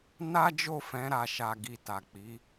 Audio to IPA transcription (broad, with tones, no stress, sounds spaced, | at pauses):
n a˦ d͡ʒ o˦˨ f ɛ̃˨˦ ɾ a˧ ʃ a˧ ɡ i˧ t a˨ k͡p i˨˦